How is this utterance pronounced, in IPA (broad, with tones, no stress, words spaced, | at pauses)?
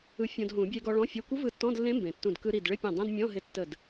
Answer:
ɯ˧˥fʲɔ̃˧dɦũ˨˩˦ bʲe˧ɡɔ˧ ɭɔ̃˧˥˧fʲə˧˥˧ kʷɯ˧˥vɯ˧˩ tːɔ̃˧˥˧dlːẽ˧˥mbẽ˩ tːũ˧˩d kɯ˧ ɾi˧˩dɭɪ˧˥˧pʲẽ˧˩ dˤẽ˧˥˧d mʲɔ̃˧˥˧ɦɪ˧˥ tːə˧˩d